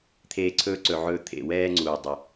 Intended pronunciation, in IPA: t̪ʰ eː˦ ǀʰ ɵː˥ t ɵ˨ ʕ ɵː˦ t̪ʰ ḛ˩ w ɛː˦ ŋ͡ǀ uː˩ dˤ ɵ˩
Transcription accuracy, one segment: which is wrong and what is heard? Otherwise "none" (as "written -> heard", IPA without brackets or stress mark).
t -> ǀ